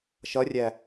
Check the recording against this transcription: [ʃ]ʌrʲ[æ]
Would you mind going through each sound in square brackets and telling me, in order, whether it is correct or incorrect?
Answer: correct, correct

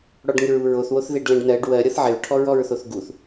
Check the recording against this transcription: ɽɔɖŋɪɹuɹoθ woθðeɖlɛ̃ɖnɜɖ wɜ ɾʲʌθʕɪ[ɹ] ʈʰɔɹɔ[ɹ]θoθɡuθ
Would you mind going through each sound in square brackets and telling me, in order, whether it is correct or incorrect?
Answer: correct, correct

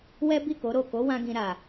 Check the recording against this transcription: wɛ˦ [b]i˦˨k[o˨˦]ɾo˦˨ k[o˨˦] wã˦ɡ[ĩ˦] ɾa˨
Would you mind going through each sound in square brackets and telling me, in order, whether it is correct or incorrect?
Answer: correct, correct, correct, incorrect

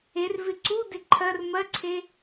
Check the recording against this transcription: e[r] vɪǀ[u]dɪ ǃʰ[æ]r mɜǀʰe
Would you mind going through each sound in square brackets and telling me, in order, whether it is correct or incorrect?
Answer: correct, correct, incorrect

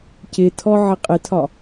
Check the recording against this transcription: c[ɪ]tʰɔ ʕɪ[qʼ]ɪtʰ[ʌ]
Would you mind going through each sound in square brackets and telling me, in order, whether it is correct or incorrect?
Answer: correct, correct, incorrect

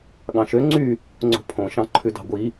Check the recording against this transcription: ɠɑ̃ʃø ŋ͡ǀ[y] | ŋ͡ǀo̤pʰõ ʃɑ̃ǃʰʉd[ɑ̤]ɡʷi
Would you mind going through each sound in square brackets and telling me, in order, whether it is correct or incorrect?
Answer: correct, correct

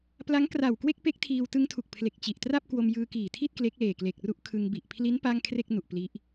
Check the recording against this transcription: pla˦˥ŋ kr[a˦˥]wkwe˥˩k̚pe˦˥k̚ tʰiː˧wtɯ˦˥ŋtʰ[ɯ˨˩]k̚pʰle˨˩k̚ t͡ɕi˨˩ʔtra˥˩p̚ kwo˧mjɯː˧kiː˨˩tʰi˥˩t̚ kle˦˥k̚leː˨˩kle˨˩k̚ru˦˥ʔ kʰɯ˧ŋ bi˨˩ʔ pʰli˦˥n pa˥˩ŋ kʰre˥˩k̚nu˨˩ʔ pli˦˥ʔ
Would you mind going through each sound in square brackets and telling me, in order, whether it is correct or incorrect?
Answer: incorrect, incorrect

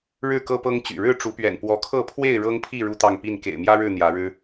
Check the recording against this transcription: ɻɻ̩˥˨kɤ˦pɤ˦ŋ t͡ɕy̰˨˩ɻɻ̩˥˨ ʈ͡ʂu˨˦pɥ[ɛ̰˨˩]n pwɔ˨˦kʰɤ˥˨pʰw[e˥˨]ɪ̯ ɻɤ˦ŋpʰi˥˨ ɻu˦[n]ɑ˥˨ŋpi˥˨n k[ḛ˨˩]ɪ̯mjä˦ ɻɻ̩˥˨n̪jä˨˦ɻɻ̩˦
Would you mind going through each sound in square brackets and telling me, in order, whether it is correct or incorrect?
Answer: correct, correct, incorrect, correct

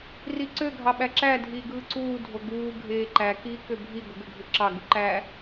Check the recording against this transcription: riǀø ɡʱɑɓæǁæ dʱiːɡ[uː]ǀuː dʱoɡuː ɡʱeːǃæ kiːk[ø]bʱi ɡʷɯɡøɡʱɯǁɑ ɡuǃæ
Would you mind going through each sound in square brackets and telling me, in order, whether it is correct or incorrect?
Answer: incorrect, correct

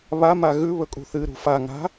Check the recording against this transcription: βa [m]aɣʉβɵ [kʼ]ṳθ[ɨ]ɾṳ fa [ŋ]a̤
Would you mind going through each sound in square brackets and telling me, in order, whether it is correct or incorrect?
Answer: correct, correct, correct, correct

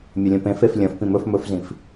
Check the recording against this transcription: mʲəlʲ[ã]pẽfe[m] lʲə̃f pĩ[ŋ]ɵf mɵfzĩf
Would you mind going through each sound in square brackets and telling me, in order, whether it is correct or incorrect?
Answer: incorrect, incorrect, incorrect

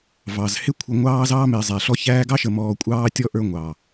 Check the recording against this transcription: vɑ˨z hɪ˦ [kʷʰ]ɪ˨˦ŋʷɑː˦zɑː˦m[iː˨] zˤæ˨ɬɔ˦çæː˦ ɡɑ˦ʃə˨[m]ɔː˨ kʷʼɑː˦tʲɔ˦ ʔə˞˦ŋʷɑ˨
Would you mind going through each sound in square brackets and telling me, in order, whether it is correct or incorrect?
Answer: correct, incorrect, correct

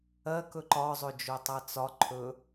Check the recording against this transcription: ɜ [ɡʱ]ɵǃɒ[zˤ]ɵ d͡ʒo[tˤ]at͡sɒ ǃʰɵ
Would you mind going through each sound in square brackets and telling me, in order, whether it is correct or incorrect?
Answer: incorrect, correct, correct

